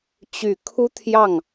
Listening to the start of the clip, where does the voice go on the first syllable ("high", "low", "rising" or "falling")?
low